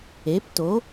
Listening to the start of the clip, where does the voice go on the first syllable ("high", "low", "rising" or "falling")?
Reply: rising